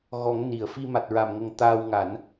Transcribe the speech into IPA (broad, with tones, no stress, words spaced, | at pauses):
ɣɔ˨˩˦ŋ ni˨˩˨ə̯ fi˧ma˨˩t̚ ɹa˨˩mŋə˨˩ŋ t̪aː˧w ŋa˨˩˦n